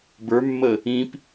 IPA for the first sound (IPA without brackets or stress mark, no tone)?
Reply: b